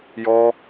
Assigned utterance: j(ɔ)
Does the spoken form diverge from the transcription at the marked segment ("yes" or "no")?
no